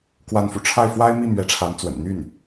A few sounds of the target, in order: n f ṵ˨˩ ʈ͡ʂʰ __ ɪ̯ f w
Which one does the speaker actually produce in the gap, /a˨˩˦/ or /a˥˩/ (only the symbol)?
a˥˩